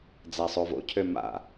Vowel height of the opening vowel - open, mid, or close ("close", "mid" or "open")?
open